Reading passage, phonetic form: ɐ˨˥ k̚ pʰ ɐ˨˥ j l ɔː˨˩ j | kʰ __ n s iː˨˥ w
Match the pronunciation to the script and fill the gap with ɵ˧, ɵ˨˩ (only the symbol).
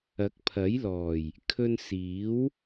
ɵ˧